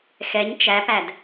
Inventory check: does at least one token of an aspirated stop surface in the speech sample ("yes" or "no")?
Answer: no